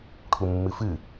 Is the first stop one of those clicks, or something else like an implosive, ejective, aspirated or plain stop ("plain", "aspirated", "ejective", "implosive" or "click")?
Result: aspirated